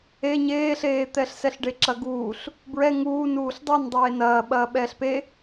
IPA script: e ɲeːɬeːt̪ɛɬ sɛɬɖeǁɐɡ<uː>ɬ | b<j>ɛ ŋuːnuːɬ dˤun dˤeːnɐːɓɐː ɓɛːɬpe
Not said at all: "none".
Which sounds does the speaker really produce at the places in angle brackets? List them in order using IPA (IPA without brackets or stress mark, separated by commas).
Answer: uː, ɹ